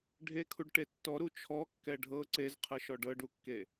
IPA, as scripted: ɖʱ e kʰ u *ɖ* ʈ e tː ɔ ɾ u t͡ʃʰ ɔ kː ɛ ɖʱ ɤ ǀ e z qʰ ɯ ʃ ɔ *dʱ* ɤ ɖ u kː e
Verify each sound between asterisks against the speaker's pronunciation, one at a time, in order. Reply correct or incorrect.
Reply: correct, incorrect: ɖ

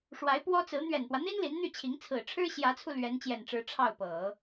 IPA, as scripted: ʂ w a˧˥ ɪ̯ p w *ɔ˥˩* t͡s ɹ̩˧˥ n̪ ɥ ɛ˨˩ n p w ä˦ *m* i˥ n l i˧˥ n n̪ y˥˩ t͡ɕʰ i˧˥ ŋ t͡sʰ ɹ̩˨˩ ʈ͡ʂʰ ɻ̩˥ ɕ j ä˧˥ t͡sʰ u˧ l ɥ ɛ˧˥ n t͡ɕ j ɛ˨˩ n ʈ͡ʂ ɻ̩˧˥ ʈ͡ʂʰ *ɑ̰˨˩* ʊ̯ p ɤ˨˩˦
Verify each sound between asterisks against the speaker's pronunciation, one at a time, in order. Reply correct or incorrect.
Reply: incorrect: ɔ˥, incorrect: n̪, incorrect: ɑ˥˩

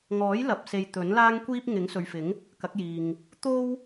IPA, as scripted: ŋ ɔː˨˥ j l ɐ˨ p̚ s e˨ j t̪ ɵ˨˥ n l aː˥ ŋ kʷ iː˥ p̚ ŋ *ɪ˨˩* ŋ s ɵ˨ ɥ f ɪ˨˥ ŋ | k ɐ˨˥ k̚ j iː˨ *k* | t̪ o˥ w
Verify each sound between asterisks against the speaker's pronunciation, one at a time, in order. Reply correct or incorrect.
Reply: incorrect: ɪ˨˥, incorrect: ŋ

